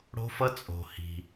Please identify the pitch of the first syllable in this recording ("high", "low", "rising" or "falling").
high